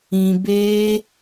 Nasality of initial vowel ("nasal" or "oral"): nasal